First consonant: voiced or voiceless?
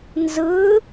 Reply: voiced